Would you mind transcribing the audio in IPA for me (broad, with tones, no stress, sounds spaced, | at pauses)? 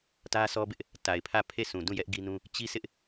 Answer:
t ä˦ sʰ ɔ˦ b ɪ˦ ʔ | t a˨ ɪ̯ pʰ ä˦˨ pʰ e˦˨ sʰ ũ˨ d ũ˦˨ j ɛ˦ ʔ ɡ i˦ n ũ˦ | t͡ɕ i˦ s ɪ˦ ʔ